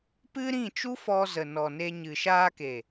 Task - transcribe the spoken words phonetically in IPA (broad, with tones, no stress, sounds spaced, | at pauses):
p ɨ˦ ɾ ĩ˦˨ t͡ʃ u˦ f ɔ˧ z ə˨ n ɔ˨ n e˧ ɲ ɨ˨ ʃ aː˧ k e˨